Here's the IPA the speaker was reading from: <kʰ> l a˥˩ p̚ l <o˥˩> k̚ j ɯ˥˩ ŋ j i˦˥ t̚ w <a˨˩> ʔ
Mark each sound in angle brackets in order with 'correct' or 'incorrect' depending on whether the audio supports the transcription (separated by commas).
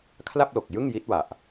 correct, incorrect, correct